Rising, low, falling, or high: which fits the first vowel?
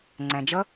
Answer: low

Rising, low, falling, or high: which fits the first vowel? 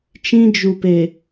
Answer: high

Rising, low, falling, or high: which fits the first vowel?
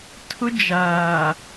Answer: high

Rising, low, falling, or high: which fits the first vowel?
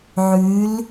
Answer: rising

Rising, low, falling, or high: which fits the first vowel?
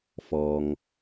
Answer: low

